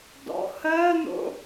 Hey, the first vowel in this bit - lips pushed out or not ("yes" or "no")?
yes